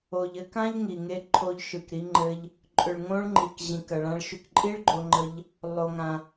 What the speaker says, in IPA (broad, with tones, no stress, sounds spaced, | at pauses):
o˩ ʎ ɘ˧ k ã˥ ʎ ŋ i˩ ŋ e˧ ǃʰ o˧ ʎ ʃ ɯ˩ k ɾ i˧ ŋ͡ǃ ɘ˧ ʎ | ǃʼ ʏ˩ ɭ ŋ õ˧ ɭ ŋ͡ǃ i˩ k ʑ ĩ˩ k ɐ˩ ɭ ã˧ ɭ ʃ ʏ˧ k ǃʼ i˥ ɭ ɡ͡ǃ o˧ ŋ͡ǃ ə˧ ʎ | lˠ o˩ ŋ ã˩